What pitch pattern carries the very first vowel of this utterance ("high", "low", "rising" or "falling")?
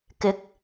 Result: rising